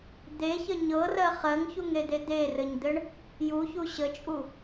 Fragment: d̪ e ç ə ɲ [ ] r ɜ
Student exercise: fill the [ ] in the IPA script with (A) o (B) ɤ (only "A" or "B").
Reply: B